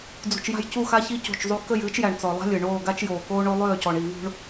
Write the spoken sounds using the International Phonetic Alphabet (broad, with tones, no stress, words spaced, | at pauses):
d͡zṳ˨t͡ʃja̤˦˨j cu˦˨xa˦ çi˦co̤˦˨t͡ʃzˤu˦ kə˦˨jɨː˦t͡ʃjæ˨ɳ t͡sɔ˨lˠa̤˦lʲɨ˨ ɳoː˦˨ɡa˦t͡ʃjoː˨ koː˦ɳo˦ lˠøː˦˨cɔ˨ɳi˨ vṳ˦ɳ